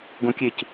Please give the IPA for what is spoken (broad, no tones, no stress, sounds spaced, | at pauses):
ɡ õ kʲ e c